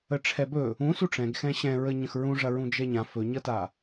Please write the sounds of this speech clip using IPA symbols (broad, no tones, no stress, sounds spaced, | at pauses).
ə ʈ͡ʂʰ ɛ b ɵ | ũ s u ʈ͡ʂ ɛ̃ ɡ x ɛ̃ ɕ ɛ̃ ɹ ə ɲ ə̃ x ɹ ũ ʐ ɐ ɹ ũ d͡ʒ ɛ ɲ ã f ɵ ɲ ʌ t a